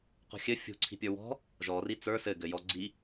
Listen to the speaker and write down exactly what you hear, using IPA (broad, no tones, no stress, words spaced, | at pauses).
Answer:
qṳxʲɘ fʲṳǀʰi̤pʲə˞ wɔ̤ | ʒɔri t͡sə˞ sɘ ɡɘjɔ ɡ͡ǀi